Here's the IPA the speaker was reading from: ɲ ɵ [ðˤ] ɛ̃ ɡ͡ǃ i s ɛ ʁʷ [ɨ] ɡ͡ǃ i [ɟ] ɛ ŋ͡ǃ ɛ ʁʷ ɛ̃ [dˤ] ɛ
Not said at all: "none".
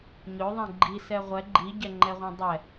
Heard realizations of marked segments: ðˤ, ɛ, ɟ, dˤ

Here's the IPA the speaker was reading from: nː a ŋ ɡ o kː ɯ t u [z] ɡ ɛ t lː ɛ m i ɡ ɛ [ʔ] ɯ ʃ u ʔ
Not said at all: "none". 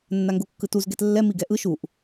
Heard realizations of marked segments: z, ʔ

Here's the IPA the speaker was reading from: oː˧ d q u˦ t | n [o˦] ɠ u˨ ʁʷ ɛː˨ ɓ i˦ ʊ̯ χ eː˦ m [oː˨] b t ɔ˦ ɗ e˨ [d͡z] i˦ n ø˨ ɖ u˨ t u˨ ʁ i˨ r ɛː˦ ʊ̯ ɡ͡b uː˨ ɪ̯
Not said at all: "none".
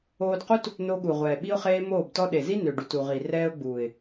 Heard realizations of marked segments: o˧, oː˦˨, z

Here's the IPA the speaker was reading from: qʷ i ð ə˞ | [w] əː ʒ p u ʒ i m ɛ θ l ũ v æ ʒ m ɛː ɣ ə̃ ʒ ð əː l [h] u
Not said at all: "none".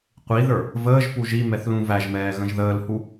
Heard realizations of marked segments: v, h

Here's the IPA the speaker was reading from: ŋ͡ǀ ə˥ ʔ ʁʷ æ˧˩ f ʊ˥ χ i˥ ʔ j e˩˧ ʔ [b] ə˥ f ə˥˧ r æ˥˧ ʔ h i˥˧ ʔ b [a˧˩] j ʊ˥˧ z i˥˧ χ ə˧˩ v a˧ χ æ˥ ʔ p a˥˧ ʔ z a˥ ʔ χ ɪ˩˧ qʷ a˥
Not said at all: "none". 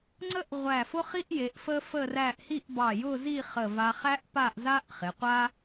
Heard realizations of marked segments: f, ɑ˧˩

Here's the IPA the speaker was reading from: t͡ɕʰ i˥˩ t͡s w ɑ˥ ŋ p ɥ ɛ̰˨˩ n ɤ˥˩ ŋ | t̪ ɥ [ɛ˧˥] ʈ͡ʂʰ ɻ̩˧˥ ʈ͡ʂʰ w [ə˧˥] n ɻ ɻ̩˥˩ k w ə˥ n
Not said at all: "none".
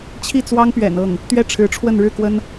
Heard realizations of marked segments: ɛ˥˩, ə˥˧

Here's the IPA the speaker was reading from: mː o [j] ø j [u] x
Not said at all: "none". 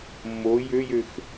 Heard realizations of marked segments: j, ø

